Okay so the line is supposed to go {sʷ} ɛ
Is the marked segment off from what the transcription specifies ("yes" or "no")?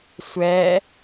no